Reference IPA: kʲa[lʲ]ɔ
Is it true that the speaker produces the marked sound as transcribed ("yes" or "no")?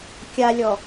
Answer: yes